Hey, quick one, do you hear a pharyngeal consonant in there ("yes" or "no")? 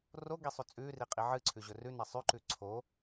yes